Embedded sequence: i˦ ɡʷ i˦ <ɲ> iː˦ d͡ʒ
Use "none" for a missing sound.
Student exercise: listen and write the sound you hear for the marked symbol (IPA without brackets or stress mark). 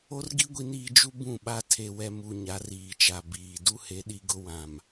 n